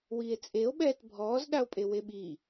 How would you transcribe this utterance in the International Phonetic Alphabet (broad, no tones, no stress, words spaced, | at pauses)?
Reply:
wiːe̯t͡sʼeo̯ɓɛːt bʱɔːzɗao̯pʼe weɓi